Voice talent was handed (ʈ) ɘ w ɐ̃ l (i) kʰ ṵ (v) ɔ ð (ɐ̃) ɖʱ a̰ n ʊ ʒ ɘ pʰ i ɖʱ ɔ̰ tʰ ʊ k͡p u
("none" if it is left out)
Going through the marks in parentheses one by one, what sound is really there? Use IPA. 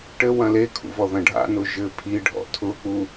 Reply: ʈ, e, v, ɐ̃

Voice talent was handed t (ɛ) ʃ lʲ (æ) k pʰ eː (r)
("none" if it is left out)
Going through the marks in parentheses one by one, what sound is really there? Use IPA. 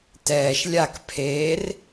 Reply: ɛː, a, r

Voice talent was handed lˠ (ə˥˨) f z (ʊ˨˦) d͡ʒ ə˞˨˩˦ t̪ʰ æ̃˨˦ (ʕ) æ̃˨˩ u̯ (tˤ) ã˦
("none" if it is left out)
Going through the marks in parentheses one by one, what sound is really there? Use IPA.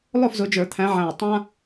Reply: ʊ˥˨, ʊ˨˦, ʕ, tˤ

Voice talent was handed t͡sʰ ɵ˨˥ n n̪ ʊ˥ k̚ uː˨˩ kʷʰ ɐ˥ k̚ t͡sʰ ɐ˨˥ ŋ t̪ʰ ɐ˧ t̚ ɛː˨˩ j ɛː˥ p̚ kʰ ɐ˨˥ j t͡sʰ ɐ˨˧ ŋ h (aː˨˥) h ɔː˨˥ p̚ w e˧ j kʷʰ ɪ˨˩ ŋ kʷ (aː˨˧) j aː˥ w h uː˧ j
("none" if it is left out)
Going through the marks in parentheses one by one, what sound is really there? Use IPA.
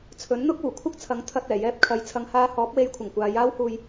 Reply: aː˧, aː˨˧

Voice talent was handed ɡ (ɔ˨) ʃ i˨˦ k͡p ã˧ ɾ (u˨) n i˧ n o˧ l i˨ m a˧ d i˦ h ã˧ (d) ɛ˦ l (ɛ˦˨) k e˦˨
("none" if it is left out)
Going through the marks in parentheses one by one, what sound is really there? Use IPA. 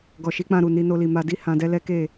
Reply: ɔ˨, u˨, d, ɛ˦

